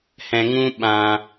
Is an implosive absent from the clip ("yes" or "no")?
no